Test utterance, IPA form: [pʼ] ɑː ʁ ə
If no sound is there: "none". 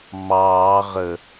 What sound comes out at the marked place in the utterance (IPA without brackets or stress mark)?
m